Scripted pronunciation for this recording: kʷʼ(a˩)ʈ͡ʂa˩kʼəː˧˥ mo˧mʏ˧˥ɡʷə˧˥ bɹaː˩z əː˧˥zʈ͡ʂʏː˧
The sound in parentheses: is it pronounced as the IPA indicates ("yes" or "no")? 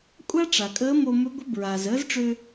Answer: no